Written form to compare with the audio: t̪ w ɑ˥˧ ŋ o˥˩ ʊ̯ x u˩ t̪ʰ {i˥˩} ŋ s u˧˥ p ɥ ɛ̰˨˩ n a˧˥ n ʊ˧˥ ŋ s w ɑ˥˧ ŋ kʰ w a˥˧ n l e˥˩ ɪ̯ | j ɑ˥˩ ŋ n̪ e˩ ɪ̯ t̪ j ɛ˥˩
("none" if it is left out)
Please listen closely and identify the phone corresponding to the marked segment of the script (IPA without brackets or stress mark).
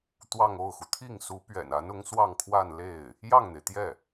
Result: i˥˩